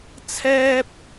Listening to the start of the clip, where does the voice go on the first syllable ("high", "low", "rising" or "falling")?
high